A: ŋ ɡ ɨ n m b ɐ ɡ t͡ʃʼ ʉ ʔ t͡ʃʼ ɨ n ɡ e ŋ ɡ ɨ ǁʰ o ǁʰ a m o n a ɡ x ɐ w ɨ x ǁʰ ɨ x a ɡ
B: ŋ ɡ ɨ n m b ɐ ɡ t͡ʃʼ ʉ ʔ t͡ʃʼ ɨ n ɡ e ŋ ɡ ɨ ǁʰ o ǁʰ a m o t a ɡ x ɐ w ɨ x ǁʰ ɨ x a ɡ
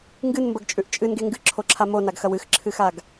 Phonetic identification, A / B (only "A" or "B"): A